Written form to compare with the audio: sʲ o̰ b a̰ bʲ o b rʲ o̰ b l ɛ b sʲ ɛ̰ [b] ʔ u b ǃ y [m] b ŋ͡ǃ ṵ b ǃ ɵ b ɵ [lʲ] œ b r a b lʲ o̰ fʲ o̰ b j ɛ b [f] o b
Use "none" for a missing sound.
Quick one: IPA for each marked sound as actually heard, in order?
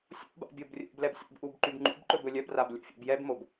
b, none, lʲ, m

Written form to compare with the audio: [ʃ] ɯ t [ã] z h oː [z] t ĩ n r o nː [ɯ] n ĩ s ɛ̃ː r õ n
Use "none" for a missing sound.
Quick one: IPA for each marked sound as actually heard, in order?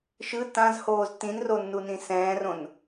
ʃ, ã, z, u

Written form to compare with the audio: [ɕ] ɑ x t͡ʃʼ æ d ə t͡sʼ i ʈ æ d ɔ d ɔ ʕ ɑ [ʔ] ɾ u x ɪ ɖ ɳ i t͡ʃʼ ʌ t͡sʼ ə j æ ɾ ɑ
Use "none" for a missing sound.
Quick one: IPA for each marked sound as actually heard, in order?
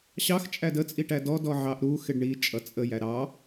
ɕ, ʔ

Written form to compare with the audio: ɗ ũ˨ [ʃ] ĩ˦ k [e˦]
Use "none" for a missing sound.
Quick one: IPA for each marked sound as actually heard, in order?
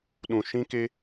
ʃ, e˦

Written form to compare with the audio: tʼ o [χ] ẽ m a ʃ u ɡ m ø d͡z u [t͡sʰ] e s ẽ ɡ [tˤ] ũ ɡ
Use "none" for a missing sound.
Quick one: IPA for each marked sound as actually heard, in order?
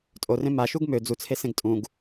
r, t͡sʰ, tʼ

